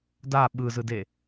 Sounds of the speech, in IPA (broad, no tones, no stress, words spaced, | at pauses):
da ɓɯzɯde